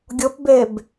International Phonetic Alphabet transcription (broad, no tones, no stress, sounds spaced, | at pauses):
ɡʲ ʊ p b e b